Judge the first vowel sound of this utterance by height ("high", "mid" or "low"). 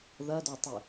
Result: low